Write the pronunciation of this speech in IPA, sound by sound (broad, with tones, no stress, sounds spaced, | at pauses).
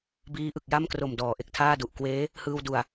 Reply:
b iː˦˥ ʔ ɯ˨˩ k̚ j a˥˩ m k r o˨˩ m d ɔː˩˦ ʔ e˨˩ k̚ tʰ aː˥˩ d u˨˩ ʔ k w eː˦˥ | h ɯː˧ w d u˨˩ a̯